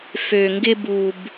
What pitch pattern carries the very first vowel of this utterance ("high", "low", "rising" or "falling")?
low